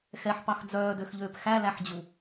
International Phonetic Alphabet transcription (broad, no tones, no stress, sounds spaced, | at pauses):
x ɛ ħ p ɑ x d͡z œː d ø x ʎ øː p x æ l æ ħ d͡ʑ u